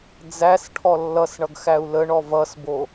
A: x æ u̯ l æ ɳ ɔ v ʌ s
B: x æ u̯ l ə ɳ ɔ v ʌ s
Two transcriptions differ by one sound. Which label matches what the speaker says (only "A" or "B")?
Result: B